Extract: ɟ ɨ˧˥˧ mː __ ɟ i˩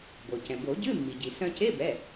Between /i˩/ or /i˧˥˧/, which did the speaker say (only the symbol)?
i˩